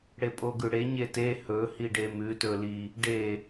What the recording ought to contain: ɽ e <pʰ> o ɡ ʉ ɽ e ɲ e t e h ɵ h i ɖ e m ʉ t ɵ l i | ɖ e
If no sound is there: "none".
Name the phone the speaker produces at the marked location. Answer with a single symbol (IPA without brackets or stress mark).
pʼ